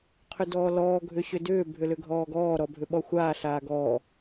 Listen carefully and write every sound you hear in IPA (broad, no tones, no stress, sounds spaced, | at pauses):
qʰ ʏ d ɔː l ɔː ɡʱ ʏ ɕ ʏ d ʏː bʱ ʏ l ʏ ɡʱ ɔː ɡ ɔː ɾ ɔ bʱ ʏ ɓ ɔ xʷ aː ɬ aː ɡ ɔː